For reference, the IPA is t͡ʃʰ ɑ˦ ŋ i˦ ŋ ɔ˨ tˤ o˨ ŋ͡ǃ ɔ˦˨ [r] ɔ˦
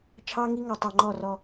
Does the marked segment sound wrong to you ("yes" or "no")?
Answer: no